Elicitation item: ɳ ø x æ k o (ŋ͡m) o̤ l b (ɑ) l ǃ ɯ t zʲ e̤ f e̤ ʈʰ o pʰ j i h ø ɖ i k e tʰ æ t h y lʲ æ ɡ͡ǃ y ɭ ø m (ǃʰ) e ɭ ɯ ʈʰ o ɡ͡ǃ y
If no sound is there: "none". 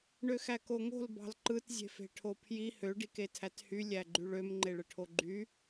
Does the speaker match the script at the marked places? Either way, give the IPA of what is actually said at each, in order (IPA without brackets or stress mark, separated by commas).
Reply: ŋ, ɑ̤, ŋ͡ǃ